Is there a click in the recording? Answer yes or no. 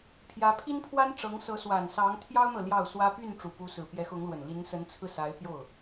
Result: no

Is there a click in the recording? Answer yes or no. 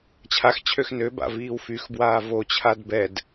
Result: no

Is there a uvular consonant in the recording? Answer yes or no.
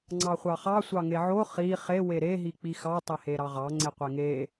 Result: yes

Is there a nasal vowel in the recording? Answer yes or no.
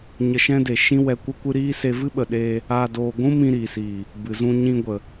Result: yes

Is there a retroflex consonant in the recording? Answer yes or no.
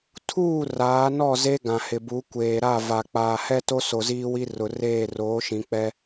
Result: no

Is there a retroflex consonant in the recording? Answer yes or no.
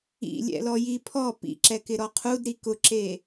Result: no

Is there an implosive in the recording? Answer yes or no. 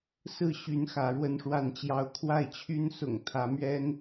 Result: no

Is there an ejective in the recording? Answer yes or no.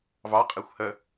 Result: yes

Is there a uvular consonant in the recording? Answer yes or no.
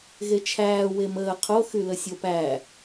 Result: yes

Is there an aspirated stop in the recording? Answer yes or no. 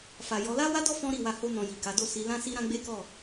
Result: no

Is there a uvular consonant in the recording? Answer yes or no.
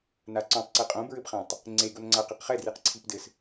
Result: yes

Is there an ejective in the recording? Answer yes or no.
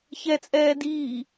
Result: yes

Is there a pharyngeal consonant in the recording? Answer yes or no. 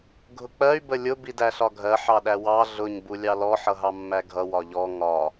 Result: yes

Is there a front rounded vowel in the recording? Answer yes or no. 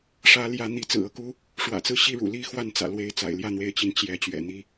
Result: no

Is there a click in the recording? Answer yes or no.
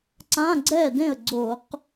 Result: yes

